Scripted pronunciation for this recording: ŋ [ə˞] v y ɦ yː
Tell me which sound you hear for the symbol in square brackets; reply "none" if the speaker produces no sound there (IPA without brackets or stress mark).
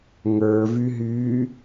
ə˞